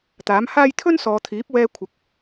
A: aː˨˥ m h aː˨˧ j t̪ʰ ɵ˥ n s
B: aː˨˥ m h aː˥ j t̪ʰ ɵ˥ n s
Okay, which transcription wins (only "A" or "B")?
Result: B